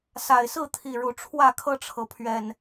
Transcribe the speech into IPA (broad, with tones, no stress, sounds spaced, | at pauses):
s a˨˩ ɪ̯ s ɹ̩˥˨ t̪ʰ i˨˩ ɻ u˨˦ ʈ͡ʂʰ w ä˥˨ kʰ ɤ˥˨ ʈ͡ʂʰ ɤ˩ pʰ ɥ ɛ˨˩ n